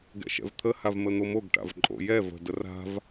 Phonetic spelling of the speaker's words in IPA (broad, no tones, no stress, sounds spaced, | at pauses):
ɡ ɛ̰ ʃ ɛ̰ v t̪ʰ ə h a v m ə n̪ o m o ɡ ʈ a̰ v ǃʼ o̰ j ɛ v ə̤ d ə r a̤ v